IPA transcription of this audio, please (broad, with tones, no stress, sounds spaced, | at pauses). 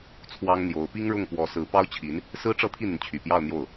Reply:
t͡sʰ w ɑ˥ ŋ n̪ j o˧˥ ʊ̯ p i˥ ŋ ɻ ʊ˥˩ ŋ p w ɔ˧˥ s ɹ̩˧˥ p ɑ˥ ʊ̯ t͡ɕʰ i˧˥ n | s ɹ̩˥ ʈ͡ʂ ɤ˥˧ t̪ʰ i˥˩ n̪ y˩ n t͡ɕʰ y˨˩ p j ɑ˥˧ ʊ̯ n̪ j o˥˩ ʊ̯